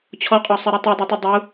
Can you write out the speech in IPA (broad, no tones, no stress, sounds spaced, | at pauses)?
t͡ɕʰ ɔ qʼ ɔ sˤ i ɾ ɛ tˤ u dˤ i tˤ u dˤ u